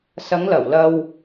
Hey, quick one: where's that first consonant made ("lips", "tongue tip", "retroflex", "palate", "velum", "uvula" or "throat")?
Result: tongue tip